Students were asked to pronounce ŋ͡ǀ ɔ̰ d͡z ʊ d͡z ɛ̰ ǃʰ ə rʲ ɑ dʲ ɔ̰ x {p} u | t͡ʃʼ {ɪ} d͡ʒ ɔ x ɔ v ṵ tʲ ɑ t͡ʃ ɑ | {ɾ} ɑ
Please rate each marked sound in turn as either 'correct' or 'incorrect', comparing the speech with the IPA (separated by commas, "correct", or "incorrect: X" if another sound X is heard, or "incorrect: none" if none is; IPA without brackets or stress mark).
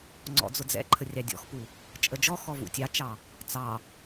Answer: correct, incorrect: ə, incorrect: t͡s